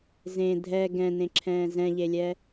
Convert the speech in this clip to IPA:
z ẽ dʱ ɛ ɡ ɛ̃ n ẽ ǁʰ ɛ̃ː z ɛ̃ ʎ e lʲ ɛ

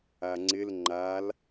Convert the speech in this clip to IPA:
a ŋ͡ǀ ɪ l ŋ͡ǃ a l

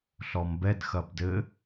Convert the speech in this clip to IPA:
ɬ ɔ m b ɛ d x ɐ b d ɘ

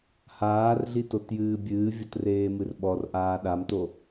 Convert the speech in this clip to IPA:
h aː r ɮ i t o t j ɨː bʲ ɨː vʲ o t r eː m ɨ r ɓ ɔ r ʔ aː ɗ a m t o

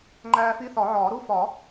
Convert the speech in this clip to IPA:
ŋ͡ǃ æː˦ f i˦ θ ɒ˨˩˦ ʕ ɒː˨˩˦ ɾ u˦ f ɒ˨˩˦

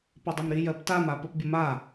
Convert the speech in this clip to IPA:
p e dˤ ə m ɾ i j ɜ p t a m a p ə p bʲ ə m a

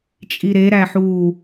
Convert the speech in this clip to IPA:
t͡ʃʼ i ɾ e ɾ æ ħ u

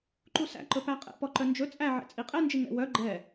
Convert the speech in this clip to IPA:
ǃ u s æ̰ ǃ ɵ p æ qʼ ɛ̰ p ɔ ǃ œ n d͡ʒ ɵ t͡sʼ æ ʕ ɛ̰ t͡sʼ i qʼ ɛ n d͡ʒ i ŋ ɛ̰ w œ ɡ͡ǃ ɛ

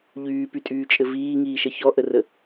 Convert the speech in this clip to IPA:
ʎ yː p y tʼ yː t͡ʃʼ ɘ v iː ŋ iː ʃ ə ç ɔ ʔ ə r ə

